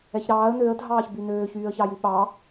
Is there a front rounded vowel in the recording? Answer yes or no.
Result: yes